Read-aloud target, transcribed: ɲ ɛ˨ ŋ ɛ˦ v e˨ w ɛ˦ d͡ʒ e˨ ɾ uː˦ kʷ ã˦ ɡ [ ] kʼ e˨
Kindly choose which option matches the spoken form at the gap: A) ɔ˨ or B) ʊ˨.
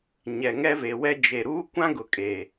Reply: B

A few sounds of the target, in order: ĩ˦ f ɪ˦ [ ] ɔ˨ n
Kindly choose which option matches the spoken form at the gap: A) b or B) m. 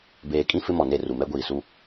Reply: B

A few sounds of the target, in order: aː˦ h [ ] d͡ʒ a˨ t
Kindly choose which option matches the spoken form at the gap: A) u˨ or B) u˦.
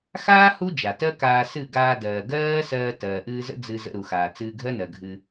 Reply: B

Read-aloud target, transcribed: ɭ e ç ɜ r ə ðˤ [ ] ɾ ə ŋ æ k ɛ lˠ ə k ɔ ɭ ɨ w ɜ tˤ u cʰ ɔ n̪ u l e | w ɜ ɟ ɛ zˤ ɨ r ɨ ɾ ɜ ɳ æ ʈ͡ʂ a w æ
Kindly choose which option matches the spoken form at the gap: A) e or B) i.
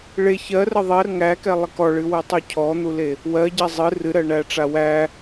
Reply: A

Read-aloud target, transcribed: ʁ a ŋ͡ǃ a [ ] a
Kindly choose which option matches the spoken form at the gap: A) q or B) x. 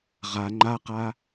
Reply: A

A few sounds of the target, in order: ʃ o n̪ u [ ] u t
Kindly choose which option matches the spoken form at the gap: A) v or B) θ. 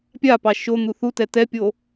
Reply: B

